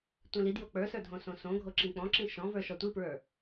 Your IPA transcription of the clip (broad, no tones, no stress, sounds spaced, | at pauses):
tʷ ĩ l i d j o k͡p ə˞ s ə˞ dʱ õ s õ s õ ɡʱ o ǁ ĩ k͡p ɔ̃ ǁ ĩ ʃ ɔ̃ v ə˞ ʃ ɔ tʷ i p ɹ ə˞